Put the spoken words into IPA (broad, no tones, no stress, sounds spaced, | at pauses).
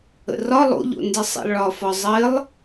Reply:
ə̰ r ɒ lˠ o̰ ʎ o̰ n d ɪ sˤ ḭ lˠ ɭ ɒ f ɒ zˤ ɘ lˠ